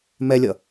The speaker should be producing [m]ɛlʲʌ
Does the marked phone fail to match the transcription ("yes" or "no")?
no